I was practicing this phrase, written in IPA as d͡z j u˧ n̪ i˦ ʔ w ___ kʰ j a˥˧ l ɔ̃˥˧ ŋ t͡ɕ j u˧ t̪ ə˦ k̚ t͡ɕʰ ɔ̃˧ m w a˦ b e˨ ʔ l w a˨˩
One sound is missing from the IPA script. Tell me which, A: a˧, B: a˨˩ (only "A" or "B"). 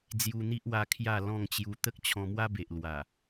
A